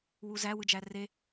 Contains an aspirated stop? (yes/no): no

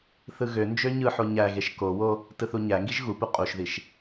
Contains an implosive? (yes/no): no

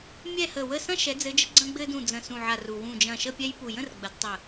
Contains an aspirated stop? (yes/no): no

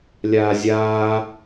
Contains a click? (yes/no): no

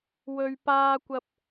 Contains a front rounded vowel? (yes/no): no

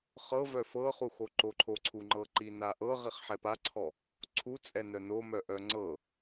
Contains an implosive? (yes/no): no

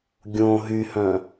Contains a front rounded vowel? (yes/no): yes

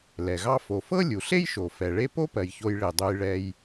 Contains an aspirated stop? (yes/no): no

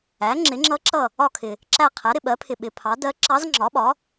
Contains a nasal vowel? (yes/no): no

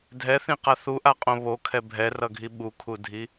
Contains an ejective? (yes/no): yes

